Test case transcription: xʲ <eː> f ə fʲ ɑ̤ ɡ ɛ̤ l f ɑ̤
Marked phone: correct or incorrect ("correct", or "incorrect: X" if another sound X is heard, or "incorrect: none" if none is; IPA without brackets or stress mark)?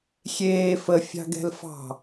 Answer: correct